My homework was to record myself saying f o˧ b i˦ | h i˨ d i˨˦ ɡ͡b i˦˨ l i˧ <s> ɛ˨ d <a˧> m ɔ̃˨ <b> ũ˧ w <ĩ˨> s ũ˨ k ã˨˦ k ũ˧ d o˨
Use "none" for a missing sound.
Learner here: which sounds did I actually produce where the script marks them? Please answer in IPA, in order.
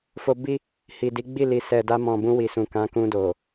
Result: s, a˧, b, i˨

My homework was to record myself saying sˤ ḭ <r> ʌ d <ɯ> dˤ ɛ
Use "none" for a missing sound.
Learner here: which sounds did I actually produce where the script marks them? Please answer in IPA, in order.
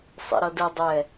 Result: ɾ, ɯ

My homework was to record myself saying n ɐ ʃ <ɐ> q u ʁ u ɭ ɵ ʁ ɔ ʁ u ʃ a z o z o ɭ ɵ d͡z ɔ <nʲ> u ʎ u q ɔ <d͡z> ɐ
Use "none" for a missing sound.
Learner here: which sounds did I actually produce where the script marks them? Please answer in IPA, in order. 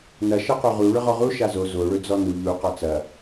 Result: ɐ, n, t͡s

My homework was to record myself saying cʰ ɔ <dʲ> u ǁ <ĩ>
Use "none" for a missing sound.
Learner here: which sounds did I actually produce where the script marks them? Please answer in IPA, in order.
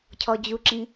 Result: d͡ʑ, ĩ

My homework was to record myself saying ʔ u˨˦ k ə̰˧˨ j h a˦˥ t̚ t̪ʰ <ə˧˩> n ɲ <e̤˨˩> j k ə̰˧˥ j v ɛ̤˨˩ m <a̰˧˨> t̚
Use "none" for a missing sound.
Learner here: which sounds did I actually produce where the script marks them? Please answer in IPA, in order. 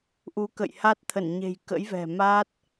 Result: ə˧˩, e̤˨˩, a˦˥

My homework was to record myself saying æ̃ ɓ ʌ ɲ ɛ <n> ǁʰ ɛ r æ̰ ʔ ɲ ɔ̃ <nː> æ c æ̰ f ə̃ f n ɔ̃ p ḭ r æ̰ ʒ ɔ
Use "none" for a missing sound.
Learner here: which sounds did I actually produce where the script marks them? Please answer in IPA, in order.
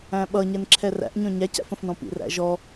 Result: n, ɲ

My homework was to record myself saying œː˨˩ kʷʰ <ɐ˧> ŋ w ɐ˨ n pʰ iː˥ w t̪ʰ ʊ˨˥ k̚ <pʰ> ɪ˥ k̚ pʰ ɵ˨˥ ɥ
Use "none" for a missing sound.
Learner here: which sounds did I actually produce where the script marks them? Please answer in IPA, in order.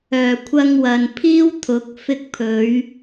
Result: ɐ˧, f

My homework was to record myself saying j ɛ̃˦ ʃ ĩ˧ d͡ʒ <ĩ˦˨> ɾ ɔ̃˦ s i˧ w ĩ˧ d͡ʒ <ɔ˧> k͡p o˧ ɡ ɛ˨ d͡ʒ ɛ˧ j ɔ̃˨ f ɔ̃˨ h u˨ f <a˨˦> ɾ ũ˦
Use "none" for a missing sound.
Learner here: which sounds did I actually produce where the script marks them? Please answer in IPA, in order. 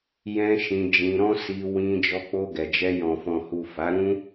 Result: ĩ˧, ɔ˧, a˨˦

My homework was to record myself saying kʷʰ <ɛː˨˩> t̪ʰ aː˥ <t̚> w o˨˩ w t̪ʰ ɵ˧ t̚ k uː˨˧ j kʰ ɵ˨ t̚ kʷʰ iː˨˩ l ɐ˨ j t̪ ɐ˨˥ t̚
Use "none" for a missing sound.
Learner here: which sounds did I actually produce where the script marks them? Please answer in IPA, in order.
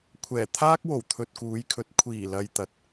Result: ɛː˨˩, k̚

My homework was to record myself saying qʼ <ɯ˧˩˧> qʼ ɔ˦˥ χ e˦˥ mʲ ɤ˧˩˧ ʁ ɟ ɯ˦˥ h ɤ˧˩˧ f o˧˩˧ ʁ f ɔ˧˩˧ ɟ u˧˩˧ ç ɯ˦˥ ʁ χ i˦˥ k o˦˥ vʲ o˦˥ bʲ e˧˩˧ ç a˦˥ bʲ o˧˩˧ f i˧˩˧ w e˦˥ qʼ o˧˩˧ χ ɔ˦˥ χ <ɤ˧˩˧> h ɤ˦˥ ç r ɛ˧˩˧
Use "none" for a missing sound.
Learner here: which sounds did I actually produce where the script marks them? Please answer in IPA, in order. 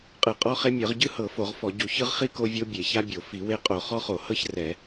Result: ɯ˧˩˧, o˧˩˧

